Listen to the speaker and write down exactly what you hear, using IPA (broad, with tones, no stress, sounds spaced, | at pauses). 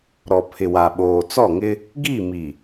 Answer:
ɾ ɔ˨ pʰ ɪ˨ w a˨ ɓ oː˨ t͡s ɔ˦˨ ŋ ɪ˦ | ɡ i˦˨ m i˨